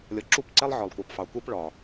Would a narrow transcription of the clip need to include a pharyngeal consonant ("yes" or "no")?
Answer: yes